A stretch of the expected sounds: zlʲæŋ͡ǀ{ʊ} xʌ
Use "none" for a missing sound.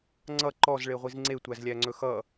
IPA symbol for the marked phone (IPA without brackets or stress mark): ɵ